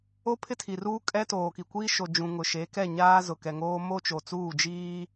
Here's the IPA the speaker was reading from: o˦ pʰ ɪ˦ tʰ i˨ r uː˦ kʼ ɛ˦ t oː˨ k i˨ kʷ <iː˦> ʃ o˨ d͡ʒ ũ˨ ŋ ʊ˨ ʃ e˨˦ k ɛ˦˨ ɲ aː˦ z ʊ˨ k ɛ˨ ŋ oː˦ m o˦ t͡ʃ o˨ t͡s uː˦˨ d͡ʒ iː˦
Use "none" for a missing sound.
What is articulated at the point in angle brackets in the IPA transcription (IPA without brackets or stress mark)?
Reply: iː˦